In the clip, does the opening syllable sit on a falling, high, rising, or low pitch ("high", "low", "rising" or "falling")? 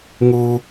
low